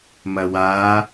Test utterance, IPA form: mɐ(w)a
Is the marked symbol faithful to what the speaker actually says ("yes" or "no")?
yes